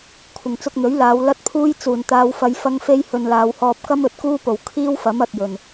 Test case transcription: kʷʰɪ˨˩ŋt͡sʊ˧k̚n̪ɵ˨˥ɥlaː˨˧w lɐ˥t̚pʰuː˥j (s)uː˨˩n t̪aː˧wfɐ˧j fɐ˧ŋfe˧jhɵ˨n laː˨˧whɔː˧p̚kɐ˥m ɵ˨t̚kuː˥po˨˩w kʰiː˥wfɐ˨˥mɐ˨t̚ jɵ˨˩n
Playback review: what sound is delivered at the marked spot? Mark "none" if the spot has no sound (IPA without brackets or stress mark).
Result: t͡s